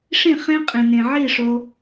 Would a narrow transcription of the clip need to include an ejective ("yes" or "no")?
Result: yes